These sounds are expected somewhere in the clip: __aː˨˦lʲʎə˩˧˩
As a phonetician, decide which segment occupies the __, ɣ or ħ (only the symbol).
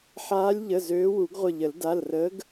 ħ